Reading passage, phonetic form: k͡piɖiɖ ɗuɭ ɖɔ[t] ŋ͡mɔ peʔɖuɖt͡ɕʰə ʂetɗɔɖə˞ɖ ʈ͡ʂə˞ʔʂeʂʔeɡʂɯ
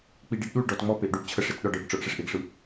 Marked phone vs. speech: correct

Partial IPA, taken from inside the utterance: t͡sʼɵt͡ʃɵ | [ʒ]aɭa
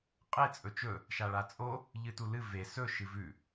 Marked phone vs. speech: incorrect: ʃ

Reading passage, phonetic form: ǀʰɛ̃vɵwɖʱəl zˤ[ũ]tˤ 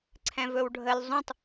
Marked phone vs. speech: correct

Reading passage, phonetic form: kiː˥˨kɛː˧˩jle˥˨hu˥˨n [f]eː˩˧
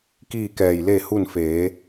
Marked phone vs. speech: correct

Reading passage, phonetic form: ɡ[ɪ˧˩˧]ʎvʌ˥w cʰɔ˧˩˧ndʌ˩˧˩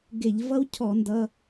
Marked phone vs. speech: correct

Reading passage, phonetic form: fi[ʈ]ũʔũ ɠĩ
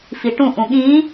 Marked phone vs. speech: correct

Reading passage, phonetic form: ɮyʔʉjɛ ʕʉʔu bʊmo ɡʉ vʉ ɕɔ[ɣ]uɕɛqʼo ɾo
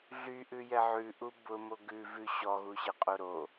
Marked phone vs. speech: correct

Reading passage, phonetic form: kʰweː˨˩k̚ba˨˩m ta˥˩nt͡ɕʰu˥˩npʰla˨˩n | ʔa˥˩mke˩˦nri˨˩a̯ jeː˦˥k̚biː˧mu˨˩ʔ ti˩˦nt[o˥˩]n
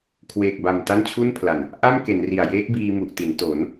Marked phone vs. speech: incorrect: o˩˦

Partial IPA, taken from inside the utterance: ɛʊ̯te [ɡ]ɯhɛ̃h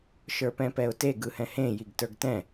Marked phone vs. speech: correct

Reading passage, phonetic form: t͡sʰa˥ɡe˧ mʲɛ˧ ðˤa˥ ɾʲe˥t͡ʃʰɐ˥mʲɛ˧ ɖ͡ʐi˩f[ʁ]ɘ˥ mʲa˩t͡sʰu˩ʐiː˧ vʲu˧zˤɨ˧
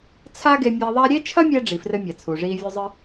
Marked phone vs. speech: incorrect: r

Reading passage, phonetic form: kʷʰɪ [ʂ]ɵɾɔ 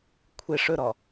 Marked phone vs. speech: correct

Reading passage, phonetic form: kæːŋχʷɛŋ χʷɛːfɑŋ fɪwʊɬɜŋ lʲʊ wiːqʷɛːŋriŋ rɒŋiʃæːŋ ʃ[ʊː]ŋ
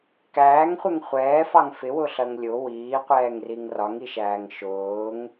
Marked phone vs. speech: correct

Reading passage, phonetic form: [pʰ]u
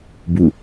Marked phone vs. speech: incorrect: b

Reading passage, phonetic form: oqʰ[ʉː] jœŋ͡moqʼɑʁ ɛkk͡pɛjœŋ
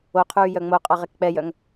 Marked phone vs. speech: correct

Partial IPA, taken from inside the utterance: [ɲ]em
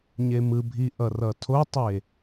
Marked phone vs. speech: correct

